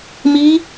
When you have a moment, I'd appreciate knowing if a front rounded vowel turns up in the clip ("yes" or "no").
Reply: no